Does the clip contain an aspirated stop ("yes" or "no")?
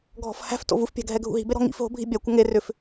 no